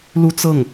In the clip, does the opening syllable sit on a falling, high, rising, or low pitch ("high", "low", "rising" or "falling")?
high